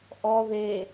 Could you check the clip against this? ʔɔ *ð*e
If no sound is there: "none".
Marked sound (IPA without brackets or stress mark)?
ð